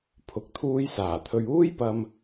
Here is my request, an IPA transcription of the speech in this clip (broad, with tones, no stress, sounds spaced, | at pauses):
pʰ ʊ˨ k̚ t̪ʰ uː˧ j s aː˨˩ t̪ʰ ɵ˨ ɥ uː˥ j p ɐ˨ m